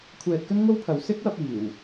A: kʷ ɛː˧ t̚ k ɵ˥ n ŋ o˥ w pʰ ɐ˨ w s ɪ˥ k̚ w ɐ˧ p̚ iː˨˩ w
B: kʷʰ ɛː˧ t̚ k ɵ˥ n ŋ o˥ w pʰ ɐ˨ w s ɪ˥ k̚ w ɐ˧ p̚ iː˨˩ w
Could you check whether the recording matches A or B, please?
B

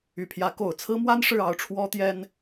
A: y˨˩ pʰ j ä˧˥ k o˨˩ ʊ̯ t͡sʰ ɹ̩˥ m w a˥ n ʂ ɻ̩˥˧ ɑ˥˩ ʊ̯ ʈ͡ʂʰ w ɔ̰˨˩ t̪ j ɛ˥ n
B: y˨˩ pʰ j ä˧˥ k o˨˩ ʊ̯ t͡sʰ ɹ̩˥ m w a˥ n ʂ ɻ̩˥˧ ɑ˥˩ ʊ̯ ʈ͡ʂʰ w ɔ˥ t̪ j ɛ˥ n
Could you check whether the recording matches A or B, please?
B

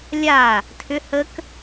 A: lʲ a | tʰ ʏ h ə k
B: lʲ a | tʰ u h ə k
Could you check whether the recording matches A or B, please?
A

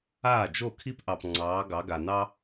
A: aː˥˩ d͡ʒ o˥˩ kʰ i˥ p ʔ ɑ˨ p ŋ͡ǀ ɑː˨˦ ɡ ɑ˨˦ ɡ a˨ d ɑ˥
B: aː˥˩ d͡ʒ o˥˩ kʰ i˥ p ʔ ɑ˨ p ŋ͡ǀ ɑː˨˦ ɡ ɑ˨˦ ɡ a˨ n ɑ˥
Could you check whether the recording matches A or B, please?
B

